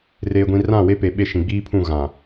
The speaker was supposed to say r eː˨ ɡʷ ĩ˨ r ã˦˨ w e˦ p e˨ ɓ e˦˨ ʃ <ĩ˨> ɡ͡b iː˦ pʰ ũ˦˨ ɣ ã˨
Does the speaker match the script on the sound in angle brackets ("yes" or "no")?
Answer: yes